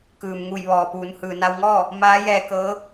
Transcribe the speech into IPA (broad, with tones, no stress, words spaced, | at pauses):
kɯː˩mŋu˧˩jʋɔː˩puː˩˧n hɯː˩na˧wŋɔː˥˨ | maː˧˥jɛː˧ kɤː˧˥